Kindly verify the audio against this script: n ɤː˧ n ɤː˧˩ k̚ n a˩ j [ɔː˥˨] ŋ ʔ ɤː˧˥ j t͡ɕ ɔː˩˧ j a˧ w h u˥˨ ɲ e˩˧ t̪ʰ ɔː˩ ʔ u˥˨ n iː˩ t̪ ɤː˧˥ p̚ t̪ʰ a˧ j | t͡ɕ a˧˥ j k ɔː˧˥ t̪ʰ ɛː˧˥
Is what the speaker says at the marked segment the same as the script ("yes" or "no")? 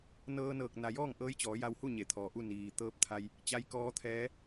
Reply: yes